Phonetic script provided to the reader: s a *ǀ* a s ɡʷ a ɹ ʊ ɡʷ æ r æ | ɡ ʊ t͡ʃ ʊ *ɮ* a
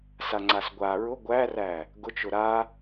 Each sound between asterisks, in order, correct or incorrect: incorrect, incorrect

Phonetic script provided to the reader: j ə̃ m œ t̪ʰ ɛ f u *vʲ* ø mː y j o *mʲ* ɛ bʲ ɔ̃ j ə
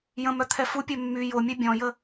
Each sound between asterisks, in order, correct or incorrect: incorrect, correct

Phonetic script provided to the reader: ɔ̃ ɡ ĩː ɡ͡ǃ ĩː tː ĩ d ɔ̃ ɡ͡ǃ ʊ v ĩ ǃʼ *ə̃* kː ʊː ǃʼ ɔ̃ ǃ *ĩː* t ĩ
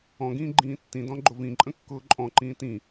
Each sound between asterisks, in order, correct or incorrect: correct, correct

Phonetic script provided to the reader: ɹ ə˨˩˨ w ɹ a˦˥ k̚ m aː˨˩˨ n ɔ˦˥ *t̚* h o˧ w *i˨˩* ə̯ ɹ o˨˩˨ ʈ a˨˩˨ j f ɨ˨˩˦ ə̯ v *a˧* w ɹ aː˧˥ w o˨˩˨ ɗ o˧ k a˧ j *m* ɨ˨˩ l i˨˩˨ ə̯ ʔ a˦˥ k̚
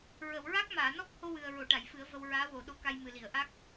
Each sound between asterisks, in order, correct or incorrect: incorrect, incorrect, incorrect, correct

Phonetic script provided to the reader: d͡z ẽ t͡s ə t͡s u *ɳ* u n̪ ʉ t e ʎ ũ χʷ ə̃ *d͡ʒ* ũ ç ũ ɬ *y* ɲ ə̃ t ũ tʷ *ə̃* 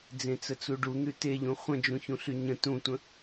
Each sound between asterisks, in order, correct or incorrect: incorrect, correct, correct, correct

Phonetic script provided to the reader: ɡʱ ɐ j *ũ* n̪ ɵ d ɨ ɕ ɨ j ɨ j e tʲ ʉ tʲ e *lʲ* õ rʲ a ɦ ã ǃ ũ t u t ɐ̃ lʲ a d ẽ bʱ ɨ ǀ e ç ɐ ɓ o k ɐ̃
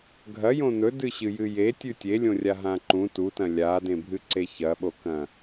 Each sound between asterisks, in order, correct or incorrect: incorrect, correct

